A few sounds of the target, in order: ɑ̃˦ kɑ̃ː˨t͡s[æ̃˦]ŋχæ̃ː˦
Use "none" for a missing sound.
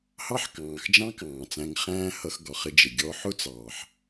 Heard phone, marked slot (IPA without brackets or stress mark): æ̃˧